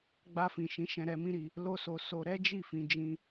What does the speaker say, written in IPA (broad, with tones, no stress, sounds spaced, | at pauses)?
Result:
ɡ͡b a˧ f ĩ˨ ʃ ĩ˨˦ ʃ ɛ̃˧ ɾ ɛ˧ m ĩ˦ ɾ i˧ | l o˦ s o˧ s o˧ ɾ ɛ˦ d͡ʒ i˦˨ f ĩ˨˦ d͡ʒ ĩ˦